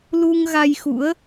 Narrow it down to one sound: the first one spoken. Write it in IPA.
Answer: l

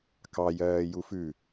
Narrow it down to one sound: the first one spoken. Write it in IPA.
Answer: k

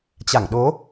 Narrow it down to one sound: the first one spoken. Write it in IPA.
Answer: t͡ɕ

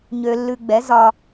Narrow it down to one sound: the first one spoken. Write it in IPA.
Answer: ɲ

